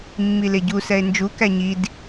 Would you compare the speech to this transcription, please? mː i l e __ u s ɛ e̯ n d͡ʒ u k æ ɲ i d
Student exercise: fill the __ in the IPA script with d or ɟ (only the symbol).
ɟ